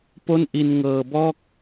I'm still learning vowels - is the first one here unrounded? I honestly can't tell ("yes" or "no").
no